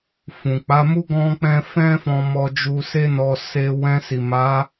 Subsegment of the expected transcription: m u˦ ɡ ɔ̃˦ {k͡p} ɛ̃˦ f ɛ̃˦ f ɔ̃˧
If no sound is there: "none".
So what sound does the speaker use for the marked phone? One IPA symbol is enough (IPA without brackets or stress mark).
k͡p